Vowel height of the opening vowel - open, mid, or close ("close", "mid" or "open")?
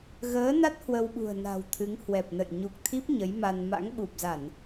mid